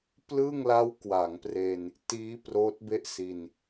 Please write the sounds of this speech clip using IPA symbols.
plɯ˥˩ŋla˦˥w kwa˩˦ŋpre˧n | tiː˦˥ proː˦˥t̚be˥˩ʔsiː˧n

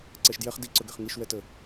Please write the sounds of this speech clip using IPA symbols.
ǀɛʃdjɛχ diǀɵɡɛχ ŋiʃwɛtə

